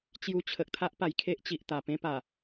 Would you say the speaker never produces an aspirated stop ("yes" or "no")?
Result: no